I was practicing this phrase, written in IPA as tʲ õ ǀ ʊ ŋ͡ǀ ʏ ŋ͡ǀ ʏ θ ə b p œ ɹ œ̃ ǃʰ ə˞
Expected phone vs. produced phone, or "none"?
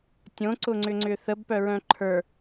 none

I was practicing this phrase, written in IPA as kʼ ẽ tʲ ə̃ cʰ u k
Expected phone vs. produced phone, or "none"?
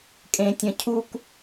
none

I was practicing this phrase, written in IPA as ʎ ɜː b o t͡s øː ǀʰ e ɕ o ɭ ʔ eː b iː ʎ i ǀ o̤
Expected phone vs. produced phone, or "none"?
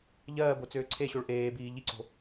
none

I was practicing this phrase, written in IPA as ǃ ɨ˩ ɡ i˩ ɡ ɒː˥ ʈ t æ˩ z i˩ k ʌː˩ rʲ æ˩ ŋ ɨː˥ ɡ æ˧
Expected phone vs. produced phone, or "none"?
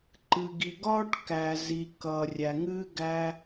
t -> k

